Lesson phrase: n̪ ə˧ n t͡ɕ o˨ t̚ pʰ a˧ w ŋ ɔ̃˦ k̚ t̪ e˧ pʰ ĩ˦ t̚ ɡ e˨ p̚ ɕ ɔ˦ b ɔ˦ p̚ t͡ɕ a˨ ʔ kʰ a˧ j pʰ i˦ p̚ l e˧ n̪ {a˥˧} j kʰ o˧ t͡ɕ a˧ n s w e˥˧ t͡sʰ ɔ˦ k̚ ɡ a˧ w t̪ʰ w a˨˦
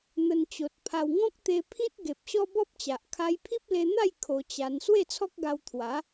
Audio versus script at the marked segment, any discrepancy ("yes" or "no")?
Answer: no